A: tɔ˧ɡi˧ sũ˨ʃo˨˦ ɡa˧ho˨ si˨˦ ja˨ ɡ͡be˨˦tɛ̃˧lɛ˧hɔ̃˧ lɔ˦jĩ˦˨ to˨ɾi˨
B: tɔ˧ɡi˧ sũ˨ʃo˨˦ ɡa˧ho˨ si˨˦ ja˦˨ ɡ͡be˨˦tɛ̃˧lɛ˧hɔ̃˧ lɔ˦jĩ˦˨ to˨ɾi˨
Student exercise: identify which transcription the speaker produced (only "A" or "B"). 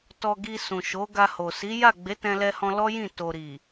B